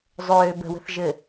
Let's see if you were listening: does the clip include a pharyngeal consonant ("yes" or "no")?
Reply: no